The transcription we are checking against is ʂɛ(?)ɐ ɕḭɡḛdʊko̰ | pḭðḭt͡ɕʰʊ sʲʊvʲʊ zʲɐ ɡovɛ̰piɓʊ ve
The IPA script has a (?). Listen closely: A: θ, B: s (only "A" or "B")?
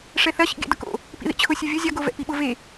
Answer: A